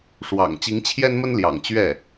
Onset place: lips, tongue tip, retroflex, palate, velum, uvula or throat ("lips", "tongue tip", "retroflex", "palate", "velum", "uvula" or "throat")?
retroflex